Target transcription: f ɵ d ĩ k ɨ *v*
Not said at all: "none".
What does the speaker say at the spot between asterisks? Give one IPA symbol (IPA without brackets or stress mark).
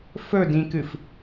f